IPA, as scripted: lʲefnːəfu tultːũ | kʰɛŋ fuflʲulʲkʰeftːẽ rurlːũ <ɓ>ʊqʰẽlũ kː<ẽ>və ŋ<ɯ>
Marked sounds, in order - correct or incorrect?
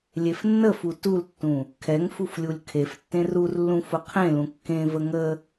incorrect, correct, incorrect

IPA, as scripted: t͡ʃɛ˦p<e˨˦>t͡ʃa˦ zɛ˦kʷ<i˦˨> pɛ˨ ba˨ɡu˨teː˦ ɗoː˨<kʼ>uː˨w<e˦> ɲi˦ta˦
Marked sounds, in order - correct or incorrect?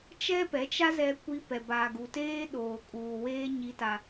incorrect, incorrect, correct, incorrect

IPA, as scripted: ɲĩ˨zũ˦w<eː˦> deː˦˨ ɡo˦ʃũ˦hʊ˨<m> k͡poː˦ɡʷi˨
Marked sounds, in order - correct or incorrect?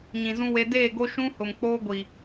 incorrect, correct

